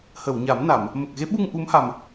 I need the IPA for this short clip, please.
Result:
h ə˨˩˨ w ɲ a˨˩˦ m n a˨˩˨ m | m ə˨˩ k̚ ɣ e˧˥ ɓ u˧ ŋ ʔ u˧˥ m h a˨˩ m

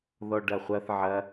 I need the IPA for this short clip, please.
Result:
ð ɔ ɖ ɐ χʷ ɐ θ ʕ ɐ

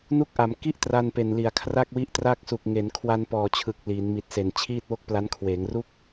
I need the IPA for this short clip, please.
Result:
n u˦˥ k̚ ʔ a˩˦ m k i˥˩ ʔ t r a˧ n p e˨˩ n l i˩˦ a̯ kʰ r a˥˩ k̚ w i˦˥ ʔ t r aː˥˩ k̚ s u˨˩ k̚ ŋ e˩˦ n kʰ w a˧ n p ɔː˨˩ t͡ɕʰ ɯ˨˩ k̚ l iː˩˦ n m i˨˩ t̚ s e˨˩ n t͡ɕʰ iː˥˩ t̚ w o˥˩ k̚ p l a˦˥ n kʰ w eː˩˦ ŋ r u˥˩ k̚

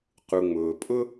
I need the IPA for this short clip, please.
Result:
q u˩ ŋ͡m ʊː˩ pʼ ʊ˥

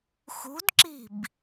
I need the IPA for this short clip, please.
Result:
x ṳ d ǁ i̤ b

